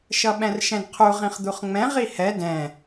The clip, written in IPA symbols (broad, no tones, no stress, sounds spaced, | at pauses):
ʃ ʌ ɓ ɛ̃ r ʃ ɛ̃ d qʰ u ʁ ĩ χ d̪ u χ ŋ͡m ɛ̃ ʁ i h ɛ d ɛ̃